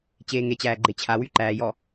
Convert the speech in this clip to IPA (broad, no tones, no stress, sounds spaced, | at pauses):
t͡ɕ eː ŋ e t͡ɕ æː ɡ͡ǃ e t͡ɕʰ a w y ǃ æː j ɔ